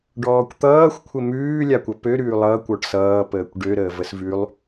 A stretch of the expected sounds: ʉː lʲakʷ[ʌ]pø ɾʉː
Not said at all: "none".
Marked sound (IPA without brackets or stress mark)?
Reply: ʌ